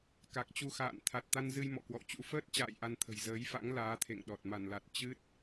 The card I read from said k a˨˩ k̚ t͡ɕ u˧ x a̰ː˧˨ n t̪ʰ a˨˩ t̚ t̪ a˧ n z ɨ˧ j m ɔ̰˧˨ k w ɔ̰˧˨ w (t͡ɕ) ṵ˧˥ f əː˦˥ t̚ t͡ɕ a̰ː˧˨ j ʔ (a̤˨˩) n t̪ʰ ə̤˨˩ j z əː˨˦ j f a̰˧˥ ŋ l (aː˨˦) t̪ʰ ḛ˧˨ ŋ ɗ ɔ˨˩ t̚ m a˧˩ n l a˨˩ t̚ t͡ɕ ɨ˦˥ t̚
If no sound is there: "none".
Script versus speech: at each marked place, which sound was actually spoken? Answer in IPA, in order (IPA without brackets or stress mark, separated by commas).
t͡ɕ, a˧, aː˨˦